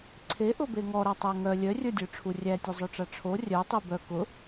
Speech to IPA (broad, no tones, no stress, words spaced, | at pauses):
ǀʰeʔʊbe ŋɔɾatˤæ ŋœ lʲœrʲə˞dʲə˞ʈ͡ʂʰu rʲætʲozˤœʈ͡ʂa ʈ͡ʂʰo rʲœtˤi bœ kʊ